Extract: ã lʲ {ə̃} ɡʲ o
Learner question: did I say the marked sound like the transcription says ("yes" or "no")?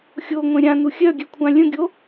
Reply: yes